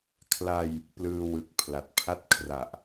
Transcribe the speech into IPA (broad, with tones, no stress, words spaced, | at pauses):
kʰla˧j | plɯː˧wɯ˨˩k̚ pʰla˨˩t̚pʰa˦˥t̚kʰra˨˩ʔ